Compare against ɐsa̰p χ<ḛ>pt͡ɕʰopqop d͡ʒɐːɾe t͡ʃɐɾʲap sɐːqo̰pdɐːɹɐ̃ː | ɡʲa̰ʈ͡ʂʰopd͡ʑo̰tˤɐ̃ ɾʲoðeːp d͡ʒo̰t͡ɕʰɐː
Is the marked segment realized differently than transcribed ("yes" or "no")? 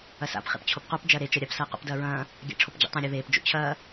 no